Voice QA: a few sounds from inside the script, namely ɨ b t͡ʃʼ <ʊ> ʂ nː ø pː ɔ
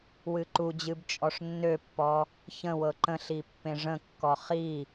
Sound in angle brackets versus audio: incorrect: ɔ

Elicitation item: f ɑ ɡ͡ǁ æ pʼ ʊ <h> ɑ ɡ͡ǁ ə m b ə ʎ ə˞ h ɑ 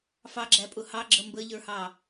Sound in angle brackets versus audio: correct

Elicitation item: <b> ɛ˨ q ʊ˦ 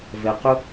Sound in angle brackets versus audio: incorrect: v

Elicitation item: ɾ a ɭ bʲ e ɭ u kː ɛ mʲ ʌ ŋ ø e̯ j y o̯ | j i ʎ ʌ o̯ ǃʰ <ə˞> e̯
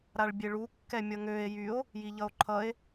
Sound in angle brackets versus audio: incorrect: ʌ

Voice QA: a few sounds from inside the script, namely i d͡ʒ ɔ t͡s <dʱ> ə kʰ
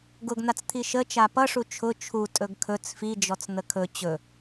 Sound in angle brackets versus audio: incorrect: n̪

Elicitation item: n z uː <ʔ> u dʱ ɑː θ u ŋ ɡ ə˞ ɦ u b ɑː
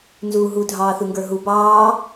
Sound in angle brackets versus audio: incorrect: ɦ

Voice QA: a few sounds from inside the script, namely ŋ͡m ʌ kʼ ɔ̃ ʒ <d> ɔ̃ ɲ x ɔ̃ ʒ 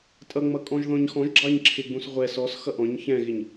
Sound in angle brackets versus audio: incorrect: ð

